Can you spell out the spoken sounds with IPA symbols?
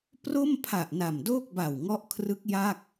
p r o˥˩ m pʰ a˨˩ ʔ n a˨˩ m d oː˥˩ k̚ b a˨˩ w ŋ ɔ˦˥ ʔ kʰ r ɯ˦˥ k̚ j a˥˩ k̚

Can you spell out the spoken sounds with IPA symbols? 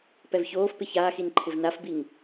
p ɛ v ç oː f p ɪ ç aː x i n ǃʰ ɪ v n a f b i ŋ

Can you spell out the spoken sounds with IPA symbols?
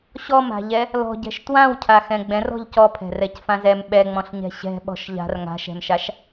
ɕ ɔ m a̤ ʎ ɛ | l ɔ̤ ɟ ɛ̤ ʃ t w ã w cʰ a x ɛ̃ ɡ͡b ɛ̃ r ɔ̤ ʎ c ɔ pʰ ɛ̤ r ɛ c f ã z ɛ m ɓ ɛ ŋ͡m ɔ̃ ɬ ɲ ɛ̤ ɕ ɛ̤ ɓ ɔ̤ ʃ ʎ a̤ r ŋ a̤ ʃ ɛ̤ m ʃ a ʃ

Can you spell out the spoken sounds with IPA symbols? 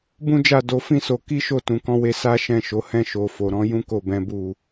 b ũ˦ d͡ʒ a˦˨ d o˧ f ĩ˦ s o˧ k i˦ ʃ o˦˨ t ũ˨ k ɔ̃˧ w e˧ s a˦ ʃ ɛ̃˦˨ ʃ o˨˦ h ɛ̃˦˨ ʃ o˨ f o˨ ɾ ɔ̃˨˦ j ũ˦ k o˦˨ b ɛ̃˨˦ b u˦˨

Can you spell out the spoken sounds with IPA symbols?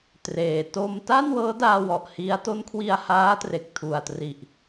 t r eː˨˩ t o˧ m t a˥˩ n w ɤː˦˥ d aː˧ w ɔ˨˩ ʔ h i˦˥ a̯ t o˦˥ n kʰ w i˧ a̯ h aː˦˥ t r e˨˩ k̚ tʰ u˨˩ a̯ t r i˨˩ ʔ

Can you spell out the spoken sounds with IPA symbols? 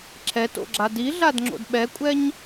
ǁʰ ɛ t o̰ ɡ͡ǁ a d i ɮ a d ŋ͡ǁ o̰ d ɓ ɛ kʷʼ ɛ ɲ

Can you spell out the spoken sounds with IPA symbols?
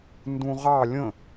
n d ũ ʁ ɑ lʲ ə̃

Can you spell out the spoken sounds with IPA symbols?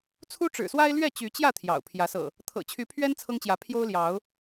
t͡sʰ u˦ ʈ͡ʂ ɻ̩˨˩ s w a˦ ɪ̯ l ɥ ɛ˥˨ t͡ɕ y˨˦ t͡ɕ j ä˥˨ t̪ʰ j ɑ̰˨˩ ʊ̯ pʰ j ä˨˦ s ɤ̰˨˩ | t̪ʰ ɤ̰˨˩ t͡ɕʰ y˨˦ pʰ ɥ ɛ˦ n t͡sʰ ɤ˦ ŋ t͡ɕ j ä˨˦ pʰ j o˦ ʊ̯ l j ɑ˨˦ ʊ̯

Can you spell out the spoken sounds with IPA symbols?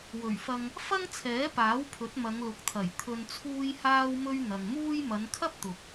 w ɵ˨˩ ɥ f ɐ˧ ŋ | f ɐ˥ ŋ t͡sʰ ɛː˨˥ p aː˨˥ w pʰ ɵ˨˥ t̚ m ɐ˨˧ ŋ l ʊ˨˥ k̚ t̪ʰ ɐ˨˩ j t̪ʰ ɵ˧ n t͡sʰ uː˥ j h aː˥ w m ɵ˥ ɥ n̪ ɐ˨ ŋ m uː˥ j m ɐ˨˧ n kʰ ɐ˥ p̚ t̪ ʊ˨ k̚

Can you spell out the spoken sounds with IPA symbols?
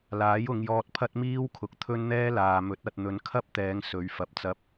l aː˨˥ j ʊ˨˧ ŋ j ɔː˧ t̚ pʰ ɐ˥ t̚ m iː˥ w kʰ ʊ˨ k̚ t̪ʰ ɵ˥ n n̪ ɛː˥ l aː˨ m ɵ˨˥ t̚ ɐ˨ t̚ n̪ ɵ˨˧ n kʰ ɐ˥ p̚ t̪ ɛː˨˧ ŋ s ɵ˨˧ ɥ f ɐ˨ p̚ t͡s ɐ˧ p̚

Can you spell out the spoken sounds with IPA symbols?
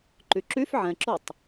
ǃ y ǁ y f ʕ ɛ̃ ǁ o tˤ

